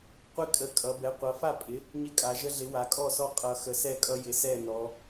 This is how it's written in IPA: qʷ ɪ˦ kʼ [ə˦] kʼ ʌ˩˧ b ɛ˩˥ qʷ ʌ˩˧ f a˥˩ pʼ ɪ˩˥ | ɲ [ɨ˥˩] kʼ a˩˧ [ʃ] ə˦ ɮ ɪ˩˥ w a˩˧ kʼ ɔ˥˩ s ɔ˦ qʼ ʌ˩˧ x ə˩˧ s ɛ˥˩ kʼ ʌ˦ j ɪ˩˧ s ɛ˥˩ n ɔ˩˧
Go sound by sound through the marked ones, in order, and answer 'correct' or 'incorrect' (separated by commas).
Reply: incorrect, incorrect, incorrect